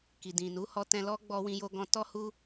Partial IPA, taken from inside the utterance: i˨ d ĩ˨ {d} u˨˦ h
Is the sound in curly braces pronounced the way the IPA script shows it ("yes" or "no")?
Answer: no